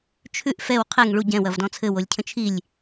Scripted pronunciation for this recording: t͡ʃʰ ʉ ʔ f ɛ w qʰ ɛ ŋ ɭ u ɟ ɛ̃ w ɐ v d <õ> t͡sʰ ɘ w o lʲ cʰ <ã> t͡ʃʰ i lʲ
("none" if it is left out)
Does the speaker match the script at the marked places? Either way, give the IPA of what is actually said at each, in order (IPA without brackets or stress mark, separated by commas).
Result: ɔ̃, ə̃